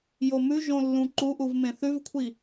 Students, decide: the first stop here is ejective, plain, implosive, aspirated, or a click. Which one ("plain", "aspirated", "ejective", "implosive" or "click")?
click